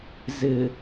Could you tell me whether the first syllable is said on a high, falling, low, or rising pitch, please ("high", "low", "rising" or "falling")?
low